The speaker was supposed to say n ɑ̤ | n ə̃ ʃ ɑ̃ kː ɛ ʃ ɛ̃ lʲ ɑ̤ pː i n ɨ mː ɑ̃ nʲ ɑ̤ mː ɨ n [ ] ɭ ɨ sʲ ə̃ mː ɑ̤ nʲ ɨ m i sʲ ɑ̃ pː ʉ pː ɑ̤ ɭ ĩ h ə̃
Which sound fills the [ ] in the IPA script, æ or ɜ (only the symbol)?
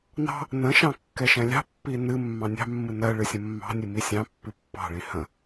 ɜ